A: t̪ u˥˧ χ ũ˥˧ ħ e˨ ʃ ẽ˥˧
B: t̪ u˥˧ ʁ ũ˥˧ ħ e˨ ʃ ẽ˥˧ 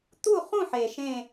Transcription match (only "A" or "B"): A